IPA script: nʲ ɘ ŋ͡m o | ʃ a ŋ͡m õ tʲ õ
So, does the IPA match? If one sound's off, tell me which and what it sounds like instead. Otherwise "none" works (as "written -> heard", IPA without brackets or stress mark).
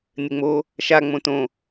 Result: tʲ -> t